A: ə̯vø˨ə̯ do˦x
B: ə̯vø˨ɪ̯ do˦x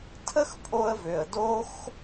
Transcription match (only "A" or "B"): A